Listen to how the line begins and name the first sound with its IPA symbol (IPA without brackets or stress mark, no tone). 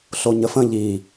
ɬ